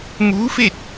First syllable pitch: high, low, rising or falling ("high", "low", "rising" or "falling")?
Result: rising